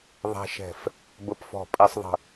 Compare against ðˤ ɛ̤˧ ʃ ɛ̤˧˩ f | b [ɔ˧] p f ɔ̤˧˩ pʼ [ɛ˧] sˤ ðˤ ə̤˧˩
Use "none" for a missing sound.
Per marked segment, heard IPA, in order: ə˧, ɛ˧

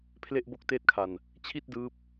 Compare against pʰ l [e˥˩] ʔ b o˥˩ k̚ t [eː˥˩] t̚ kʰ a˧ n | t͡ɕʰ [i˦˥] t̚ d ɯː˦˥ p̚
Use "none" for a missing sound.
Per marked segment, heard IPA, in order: e˥˩, eː˥˩, i˥˩

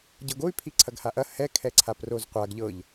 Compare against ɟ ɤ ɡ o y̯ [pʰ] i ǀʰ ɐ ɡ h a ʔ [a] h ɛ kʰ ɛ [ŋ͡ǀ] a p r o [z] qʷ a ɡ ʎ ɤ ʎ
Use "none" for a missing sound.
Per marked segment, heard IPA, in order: pʰ, ɐ, ǀʰ, z

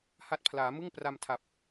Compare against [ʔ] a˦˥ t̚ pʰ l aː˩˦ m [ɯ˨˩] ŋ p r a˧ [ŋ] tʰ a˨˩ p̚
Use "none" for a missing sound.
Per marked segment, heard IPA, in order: h, ɯ˥˩, m

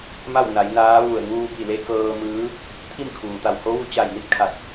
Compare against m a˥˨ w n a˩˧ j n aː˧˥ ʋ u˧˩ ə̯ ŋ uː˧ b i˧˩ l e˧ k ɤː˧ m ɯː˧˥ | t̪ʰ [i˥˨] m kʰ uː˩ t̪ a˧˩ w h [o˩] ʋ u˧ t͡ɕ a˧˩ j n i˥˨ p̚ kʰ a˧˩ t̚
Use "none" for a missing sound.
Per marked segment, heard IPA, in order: i˥˨, o˧˥

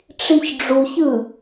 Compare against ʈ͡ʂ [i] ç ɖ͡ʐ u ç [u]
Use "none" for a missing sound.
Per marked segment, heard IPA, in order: i, ɯ

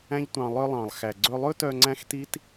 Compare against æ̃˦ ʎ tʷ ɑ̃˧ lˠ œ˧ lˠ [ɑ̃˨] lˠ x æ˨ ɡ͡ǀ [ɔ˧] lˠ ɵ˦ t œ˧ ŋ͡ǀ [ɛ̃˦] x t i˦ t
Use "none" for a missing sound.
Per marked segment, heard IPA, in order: ɑ̃˨, ɵ˧, æ̃˦

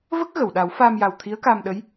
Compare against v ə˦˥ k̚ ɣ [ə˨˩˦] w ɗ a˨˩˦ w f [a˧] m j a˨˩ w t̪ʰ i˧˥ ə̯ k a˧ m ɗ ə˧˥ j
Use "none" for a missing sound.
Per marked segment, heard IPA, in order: ə˨˩˨, a˧

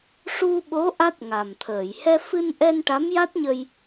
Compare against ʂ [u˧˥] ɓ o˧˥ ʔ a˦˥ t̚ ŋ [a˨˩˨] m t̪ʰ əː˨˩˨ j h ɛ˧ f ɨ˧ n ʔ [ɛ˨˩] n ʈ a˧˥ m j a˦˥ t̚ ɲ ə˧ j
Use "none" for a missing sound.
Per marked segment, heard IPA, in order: u˧, a˨˩, ɛ˧

